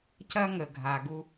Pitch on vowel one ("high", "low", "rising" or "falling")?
high